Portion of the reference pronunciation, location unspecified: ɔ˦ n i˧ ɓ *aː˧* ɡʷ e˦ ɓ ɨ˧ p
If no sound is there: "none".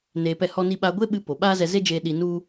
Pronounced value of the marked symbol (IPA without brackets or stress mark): a˧